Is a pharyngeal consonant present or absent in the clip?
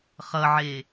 present